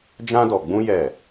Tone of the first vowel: high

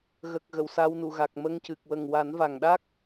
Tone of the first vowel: low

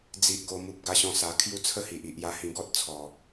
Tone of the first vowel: low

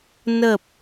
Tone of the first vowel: low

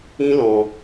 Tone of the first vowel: high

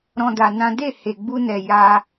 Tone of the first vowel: high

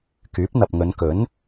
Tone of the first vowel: rising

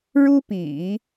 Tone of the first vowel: high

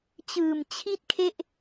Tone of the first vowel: low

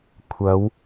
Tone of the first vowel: rising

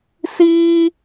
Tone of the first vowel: high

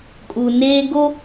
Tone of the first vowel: low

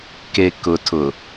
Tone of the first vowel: low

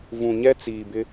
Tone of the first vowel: low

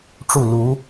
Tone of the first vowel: falling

